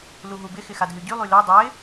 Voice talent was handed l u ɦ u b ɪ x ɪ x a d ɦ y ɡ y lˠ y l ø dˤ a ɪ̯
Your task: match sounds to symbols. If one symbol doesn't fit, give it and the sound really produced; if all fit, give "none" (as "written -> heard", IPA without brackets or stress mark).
ɡ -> ɟ